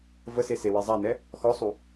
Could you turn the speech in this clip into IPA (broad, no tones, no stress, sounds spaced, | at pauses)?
v ə s e s e w e zˤ a n ɛ | x ɔ sˤ u